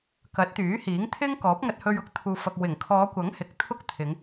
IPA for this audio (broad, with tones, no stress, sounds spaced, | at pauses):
k ɐ˨˥ t̚ t̪ yː˨˥ h iː˨˥ ŋ t̪ʰ ɪ˥ ŋ k ɔː˨˥ p̚ ŋ ɐ˧ t̚ h ɵ˧ ɥ ʊ˥ k̚ t̪ʰ uː˨ f ɐ˨ k̚ w ɪ˨˩ ŋ kʰ ɔː˨˧ kʷ ɐ˨˥ ŋ h ɪ˨˥ k̚ t̪ʰ ʊ˥ k̚ t̪ʰ ɪ˨˧ ŋ